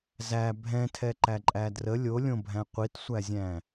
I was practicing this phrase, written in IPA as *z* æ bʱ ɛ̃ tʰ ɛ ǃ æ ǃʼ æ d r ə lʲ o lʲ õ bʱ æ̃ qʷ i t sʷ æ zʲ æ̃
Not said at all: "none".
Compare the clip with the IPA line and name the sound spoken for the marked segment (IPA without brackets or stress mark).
z